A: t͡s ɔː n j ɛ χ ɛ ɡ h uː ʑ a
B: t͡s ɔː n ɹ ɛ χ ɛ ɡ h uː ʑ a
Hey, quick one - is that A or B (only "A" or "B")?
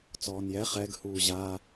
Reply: A